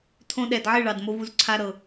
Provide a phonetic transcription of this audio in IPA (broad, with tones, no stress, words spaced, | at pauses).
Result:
tʰõ˧ɗɛ˨dʕɪ˦˨ ɭɑ˧dmo˦vu˦z ǀʰa˦ɾɤ˧